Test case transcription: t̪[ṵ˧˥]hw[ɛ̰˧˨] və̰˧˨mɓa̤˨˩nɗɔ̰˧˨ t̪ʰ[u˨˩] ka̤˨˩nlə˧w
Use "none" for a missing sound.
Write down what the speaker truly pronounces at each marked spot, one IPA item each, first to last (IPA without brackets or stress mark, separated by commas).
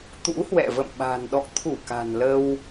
ṵ˧˥, ɛ̰˧˨, u˧˩